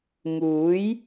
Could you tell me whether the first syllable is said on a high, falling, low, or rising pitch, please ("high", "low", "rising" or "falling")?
rising